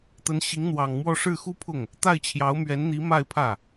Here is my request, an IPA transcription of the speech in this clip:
t̪ ə˧˥ n ɕ i˧˥ ŋ n̪ w ɑ˨˩ ŋ m w ɔ˥˧ ʂ ɻ̩˥˩ x u˥ pʰ ʊ˥˩ ŋ | t̪ a˥˩ ɪ̯ t͡ɕʰ j ɑ˧˥ ʊ̯ m ɥ ɛ˧˥ n n̪ i˧˥ m a˥˧ ɪ̯ pʰ ä˥˩

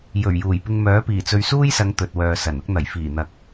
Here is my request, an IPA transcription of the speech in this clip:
j ɵ˨˩ ɥ j uː˨˩ j p ɪ˧ ŋ m œː˨˥ p iː˨˩ t͡s ɵ˧ ɥ s uː˥ j s ɐ˨˧ ŋ t̪ ɵ˨ t̚ w œː˨ s ɐ˨˩ n ʊ˥ k̚ n̪ ɐ˨˩ j f iː˨˩ n̪ ɐ˨ k̚

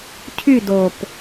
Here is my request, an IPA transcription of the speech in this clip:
cʰ y d o p

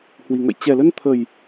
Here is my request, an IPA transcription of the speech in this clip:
h w i˨˩ ŋ ə̰˧˨ j t͡ɕ ɛ˨˩ l ə˧ n t̪ʰ ə˨˩ j

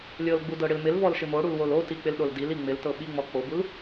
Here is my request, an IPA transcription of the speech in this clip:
lʲ ɤ l ɡ͡b u d ɤ ɽ ɪ l m ɪ l v ɔ l ʃ ɪ m o ɽ u l w o l o t i k͡p ɪ l ɗ o l d i l i ŋ͡m ɪ l t ɤ ɓ i ŋ͡m ɔ k͡p o b u l

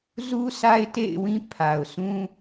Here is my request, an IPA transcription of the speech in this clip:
z u˦ sʰ a˦ ɪ̯ t ḛ˦˨ ɪ̯ w ĩ˦ pʰ a˨ ʊ̯ sʰ ũ˦

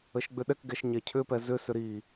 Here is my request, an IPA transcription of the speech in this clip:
ə ʃ ɡ͡b ʏ ɗ ɛ k ɡ ɛ ʃ ɲ ɛ cʰ ʏ p ɛ z ʏ s ʏ ɾ i

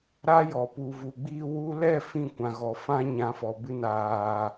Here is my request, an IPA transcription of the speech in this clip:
ɾ a˦ j ɔ˨ p u˨ v u˨ ɡ͡b i˧ w u˧ l ɛ˦˨ f ĩ˦˨ kʷ ã˨ ɣ ɔ˨ f ã˧ ɲ ã˨˦ f ɔ˨ b ɨ˧ n aː˨

